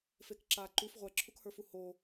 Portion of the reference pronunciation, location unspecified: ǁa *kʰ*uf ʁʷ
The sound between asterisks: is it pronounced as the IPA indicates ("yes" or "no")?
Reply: no